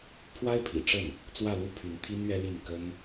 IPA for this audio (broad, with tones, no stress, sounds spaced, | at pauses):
pʰ w a˥ ɪ̯ pʰ ḭ˨˩ ʈ͡ʂ ə˥˩ n | t͡s w ä˥˧ l u˥˩ pʰ y˧˥ n t̪ʰ i˥ n ɥ ɛ˥ l i˥˩ n k ə˥ n